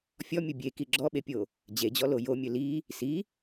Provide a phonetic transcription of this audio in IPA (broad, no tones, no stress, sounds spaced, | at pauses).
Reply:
fʲ ɔ mʲ u bʲ e k i ɡ͡ǁ ɔ ɓ e pʲ o | d͡ʑ e d͡ʑ ɔ l o j o mʲ ɵ l i | s i